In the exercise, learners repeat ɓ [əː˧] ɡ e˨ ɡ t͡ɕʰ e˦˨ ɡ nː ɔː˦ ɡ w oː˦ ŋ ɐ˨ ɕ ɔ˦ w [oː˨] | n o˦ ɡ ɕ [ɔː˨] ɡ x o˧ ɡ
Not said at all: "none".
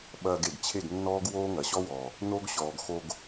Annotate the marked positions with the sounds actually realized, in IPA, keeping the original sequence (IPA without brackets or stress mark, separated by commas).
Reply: ɐː˧, ɔː˨, ɔː˨